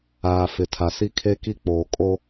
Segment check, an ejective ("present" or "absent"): present